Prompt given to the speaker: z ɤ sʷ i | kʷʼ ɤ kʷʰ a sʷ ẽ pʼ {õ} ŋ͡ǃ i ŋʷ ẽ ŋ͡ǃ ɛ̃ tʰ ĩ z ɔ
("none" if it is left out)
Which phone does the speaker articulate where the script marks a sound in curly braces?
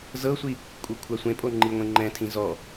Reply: o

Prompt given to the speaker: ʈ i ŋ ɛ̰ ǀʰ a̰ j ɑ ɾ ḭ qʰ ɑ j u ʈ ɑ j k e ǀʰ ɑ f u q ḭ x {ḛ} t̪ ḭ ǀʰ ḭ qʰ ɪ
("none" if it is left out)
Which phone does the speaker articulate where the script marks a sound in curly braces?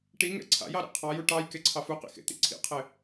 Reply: ḛ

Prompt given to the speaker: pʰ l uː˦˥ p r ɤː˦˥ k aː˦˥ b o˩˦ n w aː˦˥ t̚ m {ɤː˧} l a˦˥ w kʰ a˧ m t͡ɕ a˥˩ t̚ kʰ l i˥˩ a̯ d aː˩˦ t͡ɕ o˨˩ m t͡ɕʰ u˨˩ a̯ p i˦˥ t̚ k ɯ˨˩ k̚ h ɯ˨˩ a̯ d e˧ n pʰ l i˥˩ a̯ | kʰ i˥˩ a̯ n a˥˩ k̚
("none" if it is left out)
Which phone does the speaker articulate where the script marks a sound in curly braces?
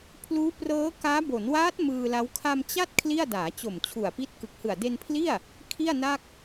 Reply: ɯː˧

